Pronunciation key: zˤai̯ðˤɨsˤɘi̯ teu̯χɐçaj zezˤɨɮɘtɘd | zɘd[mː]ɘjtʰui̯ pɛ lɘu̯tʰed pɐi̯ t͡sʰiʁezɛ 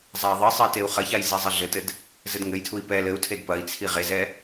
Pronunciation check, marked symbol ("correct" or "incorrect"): incorrect